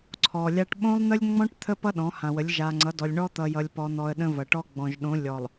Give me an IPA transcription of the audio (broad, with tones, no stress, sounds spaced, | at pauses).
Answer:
ǀʰ ɔ˨ lʲ a˦ ʈ ɓ õ˦ lˠ n̪ ə˦ lʲ ŋ͡m ɔ̃˦ ʈ t̪ʰ ə˦ p ʌ˦ ɗ ɔ̃˨˦ h ã˨ w ə˨˦ lʲ ʒ a˨ ŋ͡ǀ ʌ˨˦ d ɔ˨ lʲ ɳ ɔ˦ t̪ ʌ˨ j ʌ˨ lʲ p ɔ˨ n̪ ɔ˨ ə̯ ɗ ə̃˦ v ʌ˨ ʈ ɔ˦ ɡ͡b ɔ̃˨ ʒ ɗ õ˨˦ lʲ ɔ˨ lˠ